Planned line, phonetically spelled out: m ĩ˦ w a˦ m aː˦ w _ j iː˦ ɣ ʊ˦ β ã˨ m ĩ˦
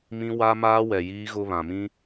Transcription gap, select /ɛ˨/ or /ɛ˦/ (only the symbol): ɛ˨